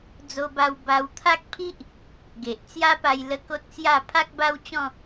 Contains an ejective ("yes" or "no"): no